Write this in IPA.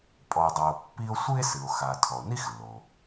pʼ ɔ˩ e̯ dˤ a˩ o̯ pː i˥ o̯ sʷ ɨ˥ e̯ s ɨ˩ o̯ x a˩ tʰ ɔ˩ o̯ n i˥ x lː o˩

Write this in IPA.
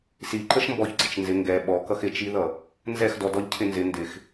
s i ǃ ə ʃ m b ɔ ç ɡ͡ǀ ɪ t͡ʃ n z ɪ ŋ ɡ ɛ ɓ ɔ k ʌ x ɪ t͡ʃ i ð ʌ | n z ɛ x d ɔ d ɔ ʎ cʰ ɪ n z ɪ n d ɪ x

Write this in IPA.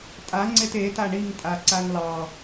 tʼ a ŋ͡ǀ e t e t a ɳ i ŋ tʼ a ǀ a ŋ l ɑ

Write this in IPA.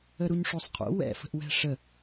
ə ɾ u ɲ ʂ o sˤ qʰ o̰ w ɛ̰ f ə̤ ʔ w ɛ̤ ʂ ə

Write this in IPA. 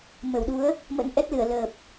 m ə˧˩ w ɗ u˨˦ ə̯ | m ə̰˧˥ n ʔ ɛ˦˥ t̚ l ɨ˧˩ ə̯ l əː˨˩ p̚

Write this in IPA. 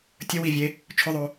tʲ ə w i vʲ e | t͡ʃʰ ʊ ðˤ o

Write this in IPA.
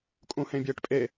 kʼ ũ h ẽ bʲ eː ʈ pʼ e

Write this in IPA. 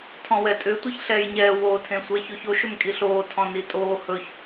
tʰ ɔ̃ w ɛ tʼ ʏ tʷ e ç ɬ ɛː j ɲ ɛː w o tʰ ẽ sʷ ɛ ç o ç o ʃ ʏ m kʼ i ɬ oː tʰ ɔ̃ n i tʼ oː h ɵ ç

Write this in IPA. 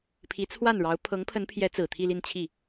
pʰ i˧˥ t͡sʰ w a˥˩ n ɻ ɑ˧˥ ʊ̯ pʰ ɤ˧˥ ŋ pʰ ə˧˥ n pʰ j ɛ˧˥ t͡s ɹ̩˨˩ t̪ʰ i˥˧ l i˥˧ n t͡ɕʰ i˥˩

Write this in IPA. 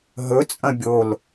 ɦ ɵ t͡sʼ ɐ̃ bʲ o l

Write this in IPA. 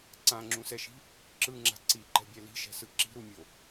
ǀ ã ŋ͡ǁ ũ s ɛ ʃ i̤ | ǁ ɯ ŋ͡ǁ a̤ ǀ i ǃ ɛ̤ bʲ ɛ l i̤ ʃ ɛ̤ s ɯ ǁ i̤ ɾ u mʲ o

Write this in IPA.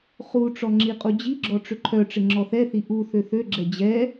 χ u ʈ͡ʂ ɔ ŋ͡ǁ i qʼ u d͡ʑ i ɡ͡ǁ ɔ ʈ͡ʂ ʏ ǃʰ œ ʈ͡ʂ ɪ ŋ͡ǁ ɔ θ ɛ θ i ʔ u θ ø θ ø ɡ͡ǁ ɛ d͡ʑ ɛ

